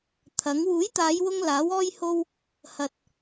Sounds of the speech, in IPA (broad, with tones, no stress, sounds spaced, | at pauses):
t̪ʰ ɐ˨˥ ŋ w uː˨˥ j t̪ aː˨˧ j w ʊ˧ ŋ l aː˨˥ w ɔː˥ j h o˥ w | h ɐ˧ t̚